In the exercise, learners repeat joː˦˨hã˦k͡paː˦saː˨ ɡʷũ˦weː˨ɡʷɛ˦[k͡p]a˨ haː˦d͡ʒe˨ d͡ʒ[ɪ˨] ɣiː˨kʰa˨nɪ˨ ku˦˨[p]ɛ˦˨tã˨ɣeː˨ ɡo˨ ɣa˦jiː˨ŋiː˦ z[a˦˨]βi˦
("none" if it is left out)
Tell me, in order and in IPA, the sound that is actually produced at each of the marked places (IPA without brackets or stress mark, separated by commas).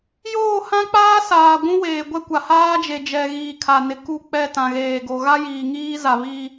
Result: kʷ, ɛ˨, k͡p, a˨